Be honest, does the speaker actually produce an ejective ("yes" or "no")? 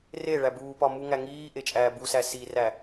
yes